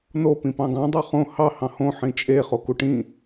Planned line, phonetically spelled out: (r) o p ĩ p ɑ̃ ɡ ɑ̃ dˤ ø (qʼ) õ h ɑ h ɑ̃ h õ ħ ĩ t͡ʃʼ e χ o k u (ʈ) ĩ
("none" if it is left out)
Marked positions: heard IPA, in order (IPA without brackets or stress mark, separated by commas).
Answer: n, χ, ʈ